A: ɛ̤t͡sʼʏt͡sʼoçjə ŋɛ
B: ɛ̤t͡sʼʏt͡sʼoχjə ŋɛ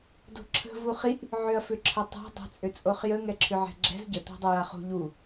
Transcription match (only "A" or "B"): B